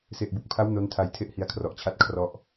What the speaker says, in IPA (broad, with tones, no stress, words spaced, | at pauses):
se˨˩ʔbu˨˩k̚pʰa˦˥w no˦˥ntʰa˧j tʰe˥˩ʔhi˧a̯kʰrɔ˨˩ʔt͡ɕʰa˥˩t̚ kʰrɔ˥˩ʔ